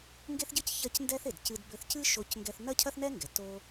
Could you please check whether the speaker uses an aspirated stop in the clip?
yes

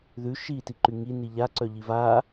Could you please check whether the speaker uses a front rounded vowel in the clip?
yes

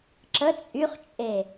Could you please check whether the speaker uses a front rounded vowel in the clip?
yes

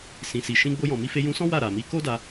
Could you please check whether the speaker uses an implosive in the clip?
no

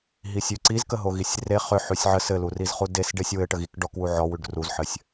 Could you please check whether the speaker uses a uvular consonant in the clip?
yes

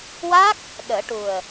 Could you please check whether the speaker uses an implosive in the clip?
yes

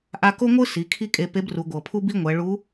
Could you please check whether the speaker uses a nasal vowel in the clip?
no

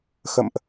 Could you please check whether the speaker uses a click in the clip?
no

